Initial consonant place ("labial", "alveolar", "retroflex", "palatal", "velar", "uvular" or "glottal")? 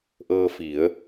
glottal